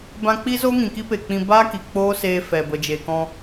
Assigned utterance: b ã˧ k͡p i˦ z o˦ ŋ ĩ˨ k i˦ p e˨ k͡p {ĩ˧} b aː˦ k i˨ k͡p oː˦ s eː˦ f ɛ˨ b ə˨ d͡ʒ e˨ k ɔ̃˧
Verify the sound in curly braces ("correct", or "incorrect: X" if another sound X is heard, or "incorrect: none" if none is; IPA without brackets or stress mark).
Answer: correct